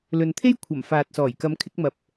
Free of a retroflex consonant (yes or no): yes